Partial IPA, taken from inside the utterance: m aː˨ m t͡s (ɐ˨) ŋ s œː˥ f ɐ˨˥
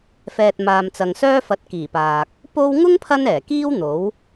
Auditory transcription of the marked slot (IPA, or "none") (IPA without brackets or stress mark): ɐ˨